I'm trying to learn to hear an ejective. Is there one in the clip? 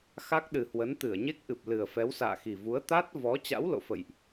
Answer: no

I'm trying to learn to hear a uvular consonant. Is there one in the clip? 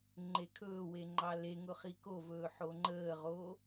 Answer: yes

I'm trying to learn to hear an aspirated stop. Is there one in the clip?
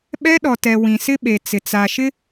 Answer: no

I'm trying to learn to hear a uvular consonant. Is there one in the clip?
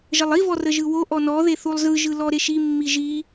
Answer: no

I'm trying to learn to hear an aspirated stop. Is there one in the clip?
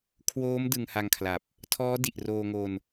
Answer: yes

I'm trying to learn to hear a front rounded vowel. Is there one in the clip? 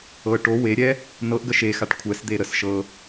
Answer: no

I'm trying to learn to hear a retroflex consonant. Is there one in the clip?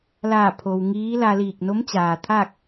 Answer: no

